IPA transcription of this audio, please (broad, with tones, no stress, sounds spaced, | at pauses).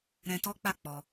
ɾ ɛ̃˧ t ɔ˦ k͡p a˦˨ k͡p ɔ˧